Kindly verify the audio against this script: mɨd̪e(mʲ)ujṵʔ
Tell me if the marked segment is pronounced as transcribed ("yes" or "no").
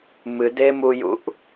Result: no